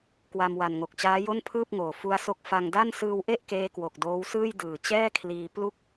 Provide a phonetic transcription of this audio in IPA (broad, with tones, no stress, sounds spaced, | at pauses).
k w a˧ m w a˨˩ n ŋ o˨˩ k̚ t͡ɕ aː˦˥ j o˥˩ n pʰ ɯː˥˩ p̚ ŋ oː˨˩ f u˦˥ a̯ s o˦˥ k̚ f a˧ ŋ d a˥˩ n s ɯː˧ w ʔ e˥˩ ʔ k eː˦˥ k w o˨˩ k̚ d oː˦˥ w s ɯː˥˩ j d ɯː˨˩ t͡ɕ ɛː˥˩ kʰ l iː˧ p l u˥˩ k̚